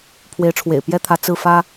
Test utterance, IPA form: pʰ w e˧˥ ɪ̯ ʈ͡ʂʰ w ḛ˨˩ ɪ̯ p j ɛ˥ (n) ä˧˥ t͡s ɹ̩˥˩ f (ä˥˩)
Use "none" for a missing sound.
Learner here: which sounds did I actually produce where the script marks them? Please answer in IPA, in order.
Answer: t̪ʰ, ä˥

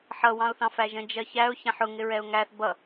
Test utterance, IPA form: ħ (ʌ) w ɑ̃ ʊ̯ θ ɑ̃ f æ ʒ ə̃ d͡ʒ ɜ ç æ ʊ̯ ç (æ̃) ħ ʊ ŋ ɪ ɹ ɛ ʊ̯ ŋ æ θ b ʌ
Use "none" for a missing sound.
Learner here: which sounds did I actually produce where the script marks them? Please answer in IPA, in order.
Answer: ʌ, æ̃

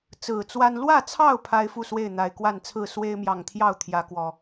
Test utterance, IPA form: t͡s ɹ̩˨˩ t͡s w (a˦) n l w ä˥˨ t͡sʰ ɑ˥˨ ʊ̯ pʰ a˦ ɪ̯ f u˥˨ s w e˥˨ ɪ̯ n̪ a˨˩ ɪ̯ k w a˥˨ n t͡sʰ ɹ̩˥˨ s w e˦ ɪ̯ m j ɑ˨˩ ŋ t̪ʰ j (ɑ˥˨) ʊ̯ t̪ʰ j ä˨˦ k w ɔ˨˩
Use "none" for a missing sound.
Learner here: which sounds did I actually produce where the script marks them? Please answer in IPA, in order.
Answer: a˦, ɑ˥˨

